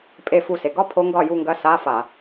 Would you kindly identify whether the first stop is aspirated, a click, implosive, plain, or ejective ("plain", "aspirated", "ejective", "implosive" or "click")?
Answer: ejective